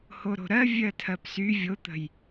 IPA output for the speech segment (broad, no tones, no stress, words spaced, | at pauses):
hoɾo̤ɾɜ vʲɜtʰɜpsy vʲot̪ə̤j